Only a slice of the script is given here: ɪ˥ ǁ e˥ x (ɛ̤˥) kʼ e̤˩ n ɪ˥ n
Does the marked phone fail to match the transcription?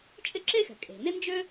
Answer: yes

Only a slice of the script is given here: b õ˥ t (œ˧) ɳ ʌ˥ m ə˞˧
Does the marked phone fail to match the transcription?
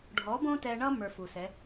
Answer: yes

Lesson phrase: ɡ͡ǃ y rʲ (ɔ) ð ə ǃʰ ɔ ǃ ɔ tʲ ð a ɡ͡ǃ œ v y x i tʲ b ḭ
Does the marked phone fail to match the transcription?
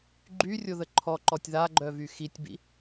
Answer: yes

